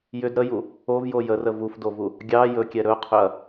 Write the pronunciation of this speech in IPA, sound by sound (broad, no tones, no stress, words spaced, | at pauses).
jʏd ɾəju | ovjo jərə vufdovu | ɡʲɑ jɵkʲɛ ɾɵqʰʏɐ̯